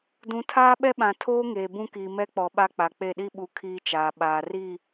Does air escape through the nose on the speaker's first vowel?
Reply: yes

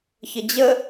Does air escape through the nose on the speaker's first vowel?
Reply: no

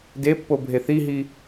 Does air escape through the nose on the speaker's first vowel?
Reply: no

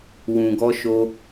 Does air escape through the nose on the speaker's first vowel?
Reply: yes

